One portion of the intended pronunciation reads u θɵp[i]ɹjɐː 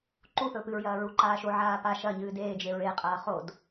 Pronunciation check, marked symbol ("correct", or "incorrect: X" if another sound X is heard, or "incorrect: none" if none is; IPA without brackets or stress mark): incorrect: ɨ